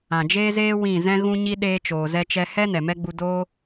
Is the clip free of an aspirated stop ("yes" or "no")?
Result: yes